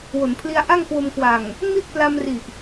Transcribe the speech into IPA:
w o˩˦ n pʰ l i˧ a̯ ʔ a˥˩ ŋ k w o˧ m k w a˨˩ ŋ | m i˥˩ t̚ p l a˧ m r i˨˩ ʔ

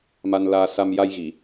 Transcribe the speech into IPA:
m a˧ n l aː˧ s a˧ m j a˧ j ɣ i˨˩˨

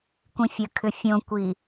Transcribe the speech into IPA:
kʷ ĩ fʲ ə kʰ ʏ fʲ õ kʷ i

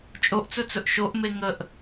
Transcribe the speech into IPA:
t͡ʃʼ o ʔ t͡s ɵ t͡s ɵ ʔ ʃ o ʔ m e ŋ ə ʔ

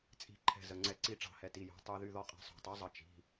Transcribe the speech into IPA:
t͡sʼ i̤˧˩ ǃʰ ɛ̤˧˩ z ə˩˧˩ ŋ͡ǀ ɛ˧˩˧ ǀ i˧˩ ʈ͡ʂ ɑ̤˧˩˧ h ɛ˩˧˩ t i˩˧˩ j o̤˩˧˩ tˤ y˧˩˧ ð y˩˧˩ ð ɔ˧˩ qʼ ɛ̤˩˧˩ sˤ o̤˧˩˧ tˤ y˩˥ zˤ ə˩˧˩ t͡ʃ i̤˩˧˩

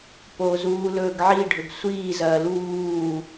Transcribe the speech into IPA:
p o z uː l ɵː ɡ ʕ i ɖʱ ɵ ɡ sʷ iː z ɐː l uː

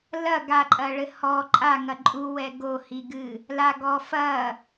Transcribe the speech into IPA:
l ɐ ɡ a ǃʼ ɐ ɭ ɘ h ɔ ǃʼ a ŋ ɐ ǃʼ u w ɛ ɡ o h i ɡ ɨ | l a ɡ ɔ f ɐ

